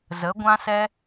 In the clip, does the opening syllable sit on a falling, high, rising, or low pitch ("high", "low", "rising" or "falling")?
rising